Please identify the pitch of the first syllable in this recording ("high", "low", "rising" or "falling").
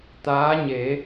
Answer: rising